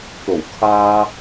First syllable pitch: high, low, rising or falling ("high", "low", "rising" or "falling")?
low